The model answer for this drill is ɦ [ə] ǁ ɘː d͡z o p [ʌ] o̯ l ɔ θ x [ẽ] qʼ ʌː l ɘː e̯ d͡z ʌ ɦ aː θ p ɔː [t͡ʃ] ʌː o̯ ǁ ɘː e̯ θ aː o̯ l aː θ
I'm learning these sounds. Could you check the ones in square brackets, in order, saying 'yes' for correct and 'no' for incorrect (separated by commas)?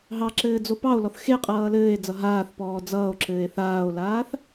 no, no, no, no